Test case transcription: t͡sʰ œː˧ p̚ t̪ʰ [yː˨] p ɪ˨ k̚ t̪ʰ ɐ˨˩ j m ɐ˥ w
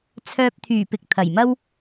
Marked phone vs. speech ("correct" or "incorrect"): incorrect